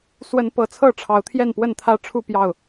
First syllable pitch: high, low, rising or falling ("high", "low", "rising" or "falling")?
rising